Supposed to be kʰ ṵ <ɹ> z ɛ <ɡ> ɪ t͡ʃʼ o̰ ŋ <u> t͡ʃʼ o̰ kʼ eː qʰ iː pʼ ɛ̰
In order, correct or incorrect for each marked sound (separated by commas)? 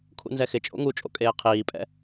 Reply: incorrect, incorrect, correct